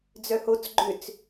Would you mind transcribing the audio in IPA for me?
d͡z œ h o t͡s ɡ͡ǃ ʏ t͡s

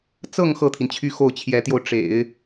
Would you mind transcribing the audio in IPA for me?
t͡s ɤ˥˧ ŋ x ɤ˥˩ t̪ʰ i˩ n t͡ɕʰ y˥˧ x o˥˩ ʊ̯ t͡ɕʰ j ɛ˧˥ t̪ j o˧ ʊ̯ ʈ͡ʂ ḛ˨˩˦ ɪ̯

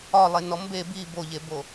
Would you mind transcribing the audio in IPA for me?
ɒ lˠ e n ɔ m b e b i b o ʎ e b o

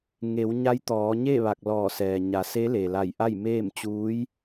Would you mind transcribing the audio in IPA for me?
ŋ e˩˧ w ɲ a˧˥ j t̪ ɔː˩˧ ɲ e˥˨ ʋ a˧˩ k̚ l ɔː˧˩ s ɛː˩ ɲ a˩˧ s e˧˥ l e˩ l a˧˩ j ʔ a˥˨ j m eː˥˨ m t͡ɕ uː˧˥ j

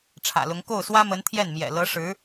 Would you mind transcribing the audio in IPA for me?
ʈ͡ʂʰ ä̰˨˩ l ʊ˧˥ ŋ k o˥˩ ʊ̯ s w ä˥ m ə˧˥ n t̪ʰ j ɛ˥˩ n m j ɛ̰˨˩ l ɤ˧˥ ʂ ɻ̩˧˥

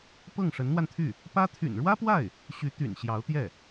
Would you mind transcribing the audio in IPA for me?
p ɤ˥˩ ŋ ʂ ə˧˥ n n̪ w a˧ n t̪ʰ y˥˩ | p ä˥ t̪ʰ y̰˨˩ n ɻ w ä˥ p w a˥˩ ɪ̯ | ɕ y˧˥ t̪ y̰˨˩ n ɕ j ɑ˧˥ ʊ̯ t̪ j ɛ˥˩

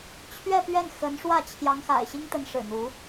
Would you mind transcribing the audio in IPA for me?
t͡ɕʰ ɥ ɛ˥˧ p ɥ ɛ˥˩ n x ə˧˥ n ʂ w ä˥˩ t͡ɕʰ j ɑ˧˥ ŋ x a̰˨˩ ɪ̯ ɕ i˥ ŋ t̪ ə˧˥ n ʂ ɻ̩˨˩ n̪ u˧˥

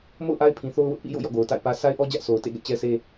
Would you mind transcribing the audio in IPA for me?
m o̰˦˨ ʊ̯ ʔ a˦ ɪ̯ pʰ ĩ˨ θ o˦ ʊ̯ w ʊ˦ ʔ p ḭ˦˨ j o̰˦˨ j ɔ̰˦˨ ɡ o˨ ʊ̯ t a̰˦˨ ɪ̯ p ä˦ sʰ a˦ ɪ̯ ʔ ɔ˦ d͡ʑ ä˦ ʔ sʰ o˨ ʊ̯ t ḛ˦˨ ɡ ɛ̰˦˨ t͡ɕ ɛ˦ s e˦

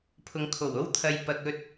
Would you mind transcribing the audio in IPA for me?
pʰ ʊ˨ ŋ kʰ o˨˩ w o˥ w t̪ʰ ɐ˨ j p ɐ˨ k̚ ɵ˧ t̚

